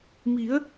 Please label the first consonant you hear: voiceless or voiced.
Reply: voiced